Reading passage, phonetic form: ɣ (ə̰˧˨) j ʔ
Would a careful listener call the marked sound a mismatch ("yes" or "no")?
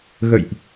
no